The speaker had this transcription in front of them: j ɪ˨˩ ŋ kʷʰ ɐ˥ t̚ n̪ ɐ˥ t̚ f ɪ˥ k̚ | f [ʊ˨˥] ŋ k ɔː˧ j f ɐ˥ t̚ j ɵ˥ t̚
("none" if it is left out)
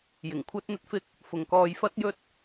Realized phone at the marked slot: ʊ˨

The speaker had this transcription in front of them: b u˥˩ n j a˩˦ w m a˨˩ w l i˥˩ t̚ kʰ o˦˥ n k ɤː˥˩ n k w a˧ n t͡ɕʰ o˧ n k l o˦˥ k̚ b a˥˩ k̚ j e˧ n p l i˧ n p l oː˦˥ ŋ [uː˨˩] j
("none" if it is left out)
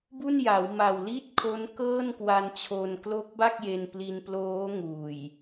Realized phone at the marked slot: uː˨˩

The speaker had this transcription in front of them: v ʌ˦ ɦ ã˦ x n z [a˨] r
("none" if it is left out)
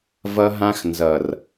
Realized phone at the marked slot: ʌ˨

